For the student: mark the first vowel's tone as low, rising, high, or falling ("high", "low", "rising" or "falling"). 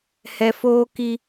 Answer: low